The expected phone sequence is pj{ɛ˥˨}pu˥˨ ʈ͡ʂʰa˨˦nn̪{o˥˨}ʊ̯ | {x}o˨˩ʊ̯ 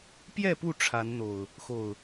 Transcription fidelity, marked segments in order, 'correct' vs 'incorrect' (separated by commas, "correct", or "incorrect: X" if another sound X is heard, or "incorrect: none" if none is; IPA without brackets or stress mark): correct, incorrect: o˨˩, correct